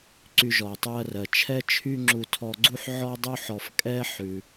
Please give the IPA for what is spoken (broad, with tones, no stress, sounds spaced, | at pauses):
ǀ y˧ ʒ ɔ˩ ɐ̯ tˤ ʉ˧ ɐ̯ r ɜ˩ t͡ʃʰ ɛ˥ t͡ʃʰ y˥ ŋ͡ǁ u˧ tʰ ɔ˧ ɡ͡ǀ u˥ ħ ʕ ɔ˥ dˤ u˥ ħ ɔ˧ f kʼ ɛ˥ ħ ʉ˩